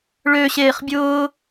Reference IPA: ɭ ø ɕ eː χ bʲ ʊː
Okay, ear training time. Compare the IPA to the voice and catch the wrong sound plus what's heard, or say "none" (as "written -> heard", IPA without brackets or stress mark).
none